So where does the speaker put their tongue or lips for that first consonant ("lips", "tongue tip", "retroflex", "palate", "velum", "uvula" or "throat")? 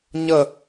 palate